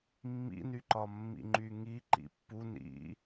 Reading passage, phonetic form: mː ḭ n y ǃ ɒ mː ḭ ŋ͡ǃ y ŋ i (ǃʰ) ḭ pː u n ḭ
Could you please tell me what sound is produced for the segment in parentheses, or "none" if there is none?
ǃ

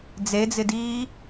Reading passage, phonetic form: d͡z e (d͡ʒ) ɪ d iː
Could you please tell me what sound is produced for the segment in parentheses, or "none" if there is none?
d͡z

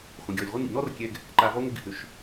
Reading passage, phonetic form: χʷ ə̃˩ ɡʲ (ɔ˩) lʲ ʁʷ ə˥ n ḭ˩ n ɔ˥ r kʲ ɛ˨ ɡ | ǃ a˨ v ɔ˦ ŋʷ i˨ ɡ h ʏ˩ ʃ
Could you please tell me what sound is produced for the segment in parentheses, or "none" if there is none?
ɔ˩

